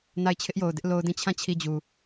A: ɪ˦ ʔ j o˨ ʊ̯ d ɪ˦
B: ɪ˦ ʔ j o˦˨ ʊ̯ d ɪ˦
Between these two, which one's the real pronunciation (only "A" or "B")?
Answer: A